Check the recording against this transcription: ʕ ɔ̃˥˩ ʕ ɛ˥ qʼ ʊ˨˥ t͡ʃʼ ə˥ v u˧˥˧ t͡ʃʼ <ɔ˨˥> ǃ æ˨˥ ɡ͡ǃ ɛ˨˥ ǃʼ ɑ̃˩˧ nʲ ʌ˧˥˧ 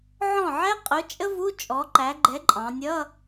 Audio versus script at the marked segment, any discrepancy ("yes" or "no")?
no